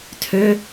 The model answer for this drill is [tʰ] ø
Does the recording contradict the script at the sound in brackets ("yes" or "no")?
no